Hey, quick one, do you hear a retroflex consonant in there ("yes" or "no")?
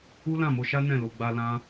no